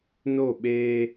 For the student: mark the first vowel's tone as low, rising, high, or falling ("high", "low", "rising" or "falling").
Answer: falling